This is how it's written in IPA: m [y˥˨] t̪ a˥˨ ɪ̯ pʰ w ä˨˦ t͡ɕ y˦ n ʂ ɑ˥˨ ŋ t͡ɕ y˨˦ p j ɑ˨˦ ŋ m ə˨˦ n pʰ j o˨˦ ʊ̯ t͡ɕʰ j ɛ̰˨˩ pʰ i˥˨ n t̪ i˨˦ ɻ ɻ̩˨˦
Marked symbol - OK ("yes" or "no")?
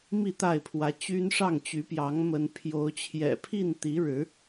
no